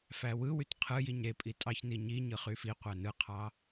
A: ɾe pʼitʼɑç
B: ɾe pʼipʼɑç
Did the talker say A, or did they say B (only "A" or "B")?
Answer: A